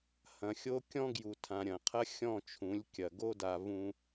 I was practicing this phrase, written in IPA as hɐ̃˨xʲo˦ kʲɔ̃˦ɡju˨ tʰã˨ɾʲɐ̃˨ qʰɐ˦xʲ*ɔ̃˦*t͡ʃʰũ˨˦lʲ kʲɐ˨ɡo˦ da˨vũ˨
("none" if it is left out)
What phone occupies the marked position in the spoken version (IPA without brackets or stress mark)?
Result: ɔ̃˦˨